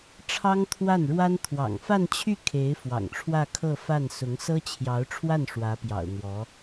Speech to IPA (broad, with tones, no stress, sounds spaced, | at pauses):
ʈ͡ʂʰ ɑ˥ ŋ t̪ʰ w a˥˩ n ɻ w a˥ n t̪ʰ w ɑ̰˨˩ ŋ f a˥˧ n t͡ɕʰ y˥˩ kʰ e˧˥ ɪ̯ f w ɑ̰˨˩ ŋ ʈ͡ʂʰ w ä˥˧ kʰ ɤ˥˧ f a˥˩ n s ʊ˧˥ ŋ s ɤ˥ t͡ɕʰ j ɑ˧˥ ʊ̯ ʈ͡ʂʰ w a˥˩ n ʂ w ä˧˥ p j ɑ̰˨˩ ʊ̯ n̪ w ɔ˧˥